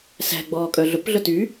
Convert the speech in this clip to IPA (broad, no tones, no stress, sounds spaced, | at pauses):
s æ̤ ɡ͡b ɔː kʼ œ ɮ ɵ p ɮ œ t y